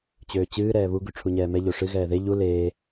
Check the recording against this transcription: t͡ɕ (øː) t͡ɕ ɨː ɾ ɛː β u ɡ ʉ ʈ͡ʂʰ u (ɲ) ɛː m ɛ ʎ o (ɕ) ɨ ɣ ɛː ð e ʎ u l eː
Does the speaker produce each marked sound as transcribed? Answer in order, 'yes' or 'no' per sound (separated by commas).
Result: yes, yes, no